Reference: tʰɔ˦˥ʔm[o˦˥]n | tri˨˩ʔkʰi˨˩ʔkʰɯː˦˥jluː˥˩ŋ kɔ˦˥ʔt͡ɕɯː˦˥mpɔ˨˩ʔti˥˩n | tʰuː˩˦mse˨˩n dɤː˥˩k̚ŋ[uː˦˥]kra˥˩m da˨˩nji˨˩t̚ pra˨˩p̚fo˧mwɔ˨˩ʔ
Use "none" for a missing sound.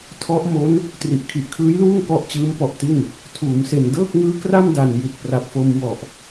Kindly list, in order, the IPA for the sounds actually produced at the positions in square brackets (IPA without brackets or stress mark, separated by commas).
o˦˥, ɯː˦˥